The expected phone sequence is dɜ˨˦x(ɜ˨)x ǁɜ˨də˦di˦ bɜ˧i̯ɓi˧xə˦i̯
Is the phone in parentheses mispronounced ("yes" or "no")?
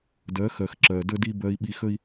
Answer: no